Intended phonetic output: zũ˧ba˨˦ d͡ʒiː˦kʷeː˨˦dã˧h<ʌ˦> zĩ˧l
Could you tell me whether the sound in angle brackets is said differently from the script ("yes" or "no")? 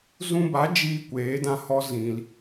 yes